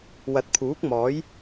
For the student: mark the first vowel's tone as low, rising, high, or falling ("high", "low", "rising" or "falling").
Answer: rising